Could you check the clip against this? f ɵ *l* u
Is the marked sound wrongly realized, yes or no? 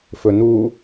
yes